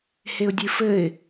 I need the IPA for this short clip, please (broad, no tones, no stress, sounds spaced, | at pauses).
h e ʊ̯ dʲ ɨ f ɘ ɪ̯